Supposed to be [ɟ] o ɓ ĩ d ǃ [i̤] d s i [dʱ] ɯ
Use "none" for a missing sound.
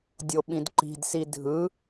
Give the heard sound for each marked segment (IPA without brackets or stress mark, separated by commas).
dʲ, i̤, dʱ